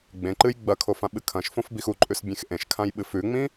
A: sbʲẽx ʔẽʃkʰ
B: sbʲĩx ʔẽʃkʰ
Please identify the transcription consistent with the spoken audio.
A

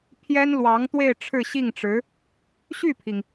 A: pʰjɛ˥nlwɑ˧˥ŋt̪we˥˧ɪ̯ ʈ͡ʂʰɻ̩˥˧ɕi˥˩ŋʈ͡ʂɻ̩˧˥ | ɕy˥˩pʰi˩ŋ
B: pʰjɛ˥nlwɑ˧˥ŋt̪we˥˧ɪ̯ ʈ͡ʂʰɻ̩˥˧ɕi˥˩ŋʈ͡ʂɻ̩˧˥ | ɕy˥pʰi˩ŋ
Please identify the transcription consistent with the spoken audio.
A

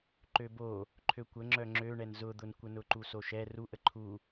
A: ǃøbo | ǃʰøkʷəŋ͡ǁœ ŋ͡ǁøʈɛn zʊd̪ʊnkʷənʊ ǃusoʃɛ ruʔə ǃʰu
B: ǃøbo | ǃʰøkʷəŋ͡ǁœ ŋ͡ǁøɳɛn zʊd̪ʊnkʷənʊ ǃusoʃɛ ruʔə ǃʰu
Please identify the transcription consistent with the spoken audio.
B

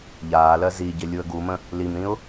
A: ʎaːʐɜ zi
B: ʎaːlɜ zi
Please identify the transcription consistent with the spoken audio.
B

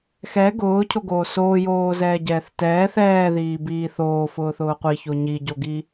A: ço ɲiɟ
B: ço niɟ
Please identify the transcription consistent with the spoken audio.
A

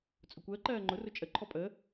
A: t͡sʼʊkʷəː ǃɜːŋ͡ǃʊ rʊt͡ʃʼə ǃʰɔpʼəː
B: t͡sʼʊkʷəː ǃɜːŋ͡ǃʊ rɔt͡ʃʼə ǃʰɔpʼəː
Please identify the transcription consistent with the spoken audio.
A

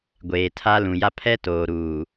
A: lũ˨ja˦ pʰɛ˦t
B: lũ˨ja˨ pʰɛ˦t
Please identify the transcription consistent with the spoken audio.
A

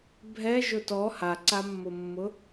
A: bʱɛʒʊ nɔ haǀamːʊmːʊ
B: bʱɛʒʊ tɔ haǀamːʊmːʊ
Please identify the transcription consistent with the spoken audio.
B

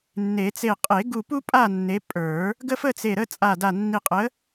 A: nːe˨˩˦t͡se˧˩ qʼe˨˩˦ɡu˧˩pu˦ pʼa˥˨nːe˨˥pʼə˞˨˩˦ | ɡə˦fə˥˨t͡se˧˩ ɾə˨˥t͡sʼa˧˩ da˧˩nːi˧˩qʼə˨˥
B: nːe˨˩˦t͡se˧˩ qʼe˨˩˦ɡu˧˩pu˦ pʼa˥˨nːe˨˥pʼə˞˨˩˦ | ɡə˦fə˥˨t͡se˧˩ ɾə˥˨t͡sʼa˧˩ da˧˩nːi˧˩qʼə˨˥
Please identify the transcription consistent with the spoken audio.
B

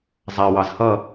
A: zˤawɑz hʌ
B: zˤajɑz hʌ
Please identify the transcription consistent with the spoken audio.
A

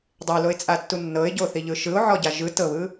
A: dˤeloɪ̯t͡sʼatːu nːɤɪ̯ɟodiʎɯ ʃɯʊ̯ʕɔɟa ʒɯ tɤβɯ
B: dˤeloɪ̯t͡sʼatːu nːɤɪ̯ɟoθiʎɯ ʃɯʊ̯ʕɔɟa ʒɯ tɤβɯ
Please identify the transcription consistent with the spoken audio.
B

